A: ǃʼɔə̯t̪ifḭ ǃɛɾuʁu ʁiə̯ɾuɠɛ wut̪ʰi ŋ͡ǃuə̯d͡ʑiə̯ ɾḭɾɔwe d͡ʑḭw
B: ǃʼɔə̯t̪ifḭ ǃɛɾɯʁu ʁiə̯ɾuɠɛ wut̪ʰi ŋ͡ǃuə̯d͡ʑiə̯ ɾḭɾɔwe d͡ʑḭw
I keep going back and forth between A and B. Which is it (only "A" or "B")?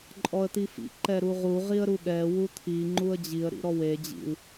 A